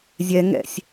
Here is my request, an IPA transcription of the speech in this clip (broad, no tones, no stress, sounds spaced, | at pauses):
zʲ ɛ ŋ ɛ̰ sʲ